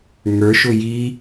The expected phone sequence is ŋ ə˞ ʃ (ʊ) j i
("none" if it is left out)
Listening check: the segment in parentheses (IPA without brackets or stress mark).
ʊ